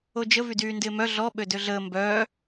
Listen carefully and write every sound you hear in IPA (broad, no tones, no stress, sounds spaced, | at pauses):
o d͡ʒ ə v y d yː n d ɪː m œ ɮ ɔ ɓ ø d ø ɮ əː m b œː